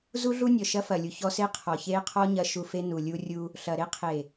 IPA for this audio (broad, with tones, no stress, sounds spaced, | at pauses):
z u˦ ɮ u˦ nʲ ɔ˨ ʃ ɐ˦ f ɐ˨ lʲ u˨ ç ɔ˦ s e˦ qʰ ɔ˨ ç e˦ qʰ ɔ˦ ɲ ɐ˨ ʃ u˨ f e˦ n u˨ lʲ u˦ rʲ u˦ | ɬ ɐ˨ ɾ e˦ qʰ e˨